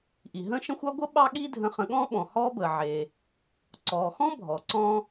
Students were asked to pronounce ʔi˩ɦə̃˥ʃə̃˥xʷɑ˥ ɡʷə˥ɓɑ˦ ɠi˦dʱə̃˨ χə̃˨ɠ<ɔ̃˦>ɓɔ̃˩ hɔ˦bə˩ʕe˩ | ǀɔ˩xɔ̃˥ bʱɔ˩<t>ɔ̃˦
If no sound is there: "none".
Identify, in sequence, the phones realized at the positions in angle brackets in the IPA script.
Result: ɔ̃˦, ǀ

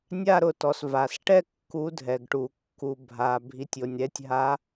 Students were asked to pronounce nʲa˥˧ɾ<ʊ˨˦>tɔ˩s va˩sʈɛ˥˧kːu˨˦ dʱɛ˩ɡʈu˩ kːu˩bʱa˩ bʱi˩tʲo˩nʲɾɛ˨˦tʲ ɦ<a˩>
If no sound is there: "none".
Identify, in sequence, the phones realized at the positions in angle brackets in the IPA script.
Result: ʊ˨˦, a˨˦

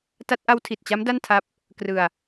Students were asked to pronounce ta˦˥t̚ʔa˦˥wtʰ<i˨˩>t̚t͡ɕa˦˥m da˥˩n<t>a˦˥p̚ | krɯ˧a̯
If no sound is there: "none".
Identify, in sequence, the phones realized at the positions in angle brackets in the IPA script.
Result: i˨˩, tʰ

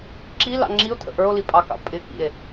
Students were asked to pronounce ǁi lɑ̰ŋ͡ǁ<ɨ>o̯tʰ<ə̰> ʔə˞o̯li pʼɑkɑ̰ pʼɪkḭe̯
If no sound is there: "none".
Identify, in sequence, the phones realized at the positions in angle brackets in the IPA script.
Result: i, ə̰

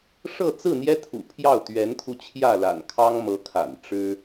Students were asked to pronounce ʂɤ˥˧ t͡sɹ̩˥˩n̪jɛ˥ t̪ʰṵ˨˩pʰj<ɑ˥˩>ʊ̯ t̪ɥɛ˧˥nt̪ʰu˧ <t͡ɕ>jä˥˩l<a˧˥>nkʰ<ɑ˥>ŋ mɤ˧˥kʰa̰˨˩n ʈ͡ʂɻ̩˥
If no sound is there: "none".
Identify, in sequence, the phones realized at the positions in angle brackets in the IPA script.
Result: ɑ˥˩, t͡ɕʰ, a̰˨˩, ɑ˥

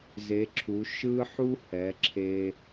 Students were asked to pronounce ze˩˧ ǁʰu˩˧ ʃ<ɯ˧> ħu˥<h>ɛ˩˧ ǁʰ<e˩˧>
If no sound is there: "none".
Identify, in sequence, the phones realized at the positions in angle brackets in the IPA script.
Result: ɯ˧, h, e˧

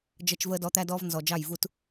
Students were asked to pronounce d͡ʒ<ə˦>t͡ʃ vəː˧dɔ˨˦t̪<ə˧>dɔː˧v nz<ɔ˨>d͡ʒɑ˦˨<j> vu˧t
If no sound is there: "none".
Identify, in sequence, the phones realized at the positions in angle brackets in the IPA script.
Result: ə˧, æ˧, ɔ˨, j

